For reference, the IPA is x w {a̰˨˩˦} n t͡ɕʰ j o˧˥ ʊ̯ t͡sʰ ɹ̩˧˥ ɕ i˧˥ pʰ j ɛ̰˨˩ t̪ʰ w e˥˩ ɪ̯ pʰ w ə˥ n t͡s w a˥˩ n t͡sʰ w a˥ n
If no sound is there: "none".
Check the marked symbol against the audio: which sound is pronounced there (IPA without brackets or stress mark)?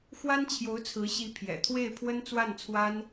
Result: a˥